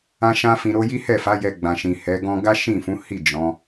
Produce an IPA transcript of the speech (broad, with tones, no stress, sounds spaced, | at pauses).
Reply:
ã˦ ʃ ã˦ f ĩ˧ ɾ o˦ j i˦ h ɛ˦˨ f a˨˦ j ɛ˧ ɡ͡b ã˨ ʃ ĩ˨ h ɛ˨˦ ɡ ɔ̃˧ ɡ a˦ ʃ ĩ˦˨ f ũ˨˦ h i˦˨ d͡ʒ ɔ̃˨˦